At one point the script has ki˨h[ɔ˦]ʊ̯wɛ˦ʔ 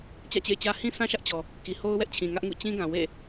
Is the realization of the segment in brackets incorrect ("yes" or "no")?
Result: yes